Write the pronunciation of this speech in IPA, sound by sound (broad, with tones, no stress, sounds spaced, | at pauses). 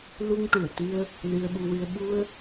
l u˧ ŋ ʈ u˨˩˨ ə̯ t̪ ɨ˧ ə̯ | l ɨ˧ ə̯ ɓ u˧ w ɨ˧ ə̯ ɓ u˧ ə̯